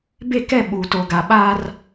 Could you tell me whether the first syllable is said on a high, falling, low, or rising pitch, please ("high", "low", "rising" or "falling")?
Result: falling